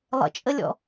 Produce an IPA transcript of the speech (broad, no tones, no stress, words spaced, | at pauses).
lˠə̰t͡ʃʼəlʲɔ̰